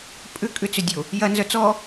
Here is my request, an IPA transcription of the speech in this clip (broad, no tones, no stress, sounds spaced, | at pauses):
pʼ ʏ kʼ ʏ t͡s ʏ dʲ o | j ɐ n z œ t͡s ɔ